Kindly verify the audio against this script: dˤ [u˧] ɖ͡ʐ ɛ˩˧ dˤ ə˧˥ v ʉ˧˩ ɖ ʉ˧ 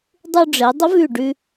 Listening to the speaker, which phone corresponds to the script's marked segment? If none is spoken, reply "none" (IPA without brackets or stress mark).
u˧